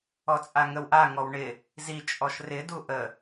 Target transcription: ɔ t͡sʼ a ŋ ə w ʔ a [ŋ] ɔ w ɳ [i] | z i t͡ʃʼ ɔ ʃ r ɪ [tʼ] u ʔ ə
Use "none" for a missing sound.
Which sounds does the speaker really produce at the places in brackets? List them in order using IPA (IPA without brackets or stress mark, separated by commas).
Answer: ŋ, ɪ, d